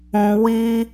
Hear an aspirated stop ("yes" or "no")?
no